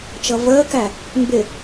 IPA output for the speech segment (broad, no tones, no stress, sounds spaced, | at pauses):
t͡ʃ ʌ v əː k æ | m b ɪ